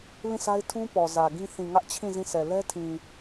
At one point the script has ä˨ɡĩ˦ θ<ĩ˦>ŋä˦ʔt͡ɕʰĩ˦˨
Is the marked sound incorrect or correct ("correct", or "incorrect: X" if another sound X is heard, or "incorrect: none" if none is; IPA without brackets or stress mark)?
incorrect: ĩ˨